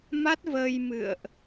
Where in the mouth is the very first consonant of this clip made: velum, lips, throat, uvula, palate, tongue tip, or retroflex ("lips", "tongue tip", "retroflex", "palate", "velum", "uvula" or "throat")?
lips